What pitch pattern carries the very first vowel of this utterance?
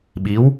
rising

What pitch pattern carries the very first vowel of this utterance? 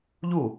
falling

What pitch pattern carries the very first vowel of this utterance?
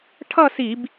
falling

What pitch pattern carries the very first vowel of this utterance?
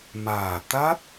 low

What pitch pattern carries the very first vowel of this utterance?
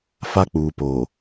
high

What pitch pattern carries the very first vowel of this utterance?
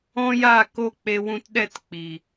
high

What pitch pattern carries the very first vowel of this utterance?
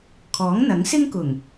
rising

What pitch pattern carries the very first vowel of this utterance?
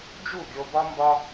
falling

